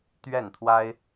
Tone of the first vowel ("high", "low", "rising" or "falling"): falling